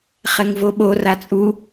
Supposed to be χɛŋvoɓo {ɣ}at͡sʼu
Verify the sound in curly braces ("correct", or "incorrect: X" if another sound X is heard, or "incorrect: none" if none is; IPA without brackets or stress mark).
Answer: incorrect: r